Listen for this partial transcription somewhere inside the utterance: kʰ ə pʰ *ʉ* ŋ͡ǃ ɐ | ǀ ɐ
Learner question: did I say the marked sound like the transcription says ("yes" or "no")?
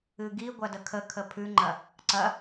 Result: yes